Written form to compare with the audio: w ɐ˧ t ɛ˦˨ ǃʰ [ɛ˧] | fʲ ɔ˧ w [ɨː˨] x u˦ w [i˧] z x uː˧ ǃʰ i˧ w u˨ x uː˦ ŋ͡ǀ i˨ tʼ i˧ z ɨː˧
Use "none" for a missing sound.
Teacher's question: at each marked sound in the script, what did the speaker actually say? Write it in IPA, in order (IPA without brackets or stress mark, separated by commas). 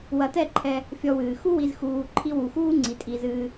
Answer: ɛ˧, ɨː˨, i˧